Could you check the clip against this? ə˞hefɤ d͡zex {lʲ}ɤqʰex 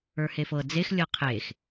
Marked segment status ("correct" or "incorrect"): correct